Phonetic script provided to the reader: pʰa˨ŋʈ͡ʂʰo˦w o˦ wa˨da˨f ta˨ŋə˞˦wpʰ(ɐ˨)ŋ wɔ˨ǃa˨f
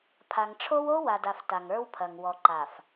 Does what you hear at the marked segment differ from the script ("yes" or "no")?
no